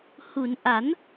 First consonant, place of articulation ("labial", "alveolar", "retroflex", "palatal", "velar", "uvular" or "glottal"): glottal